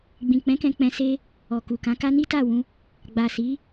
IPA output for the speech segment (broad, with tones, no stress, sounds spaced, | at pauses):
ɡ͡b ĩ˨ k͡p ɛ̃˨˦ k ɛ̃˧ k͡p ɛ̃˧ s e˦ | ɔ˨ k u˨ k ã˨˦ k a˦ n i˦ t a˦˨ w ũ˧ | ɡ͡b a˨ s i˨˦